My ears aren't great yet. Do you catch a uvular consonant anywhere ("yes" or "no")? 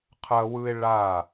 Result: yes